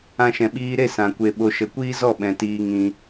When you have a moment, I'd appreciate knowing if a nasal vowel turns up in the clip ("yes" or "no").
yes